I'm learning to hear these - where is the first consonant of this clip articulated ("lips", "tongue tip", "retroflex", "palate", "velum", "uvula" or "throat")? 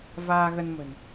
lips